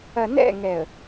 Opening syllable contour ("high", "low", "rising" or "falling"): low